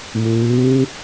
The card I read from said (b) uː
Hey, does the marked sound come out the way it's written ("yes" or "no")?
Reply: no